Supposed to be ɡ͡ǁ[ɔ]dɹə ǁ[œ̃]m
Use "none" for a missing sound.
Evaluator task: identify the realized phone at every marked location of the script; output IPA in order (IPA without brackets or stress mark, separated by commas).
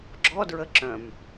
ɔ, œ̃